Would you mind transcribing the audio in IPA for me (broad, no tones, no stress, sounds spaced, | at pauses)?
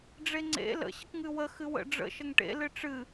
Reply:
ɖ͡ʐ e ŋ͡ǀ ḛ l ə̰ ɕ ə k ŋ ɨ w ə x ɨ w ə̰ ɖ͡ʐ ə̰ ʃ ə ŋ ʈ ḛ l ɨ ʈ͡ʂ ɨ